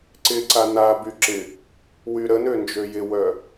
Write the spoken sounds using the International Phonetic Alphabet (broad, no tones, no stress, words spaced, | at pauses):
ǀɪǀa naby ǁɪ | wyɾənø nd͡ʒøjɪwœ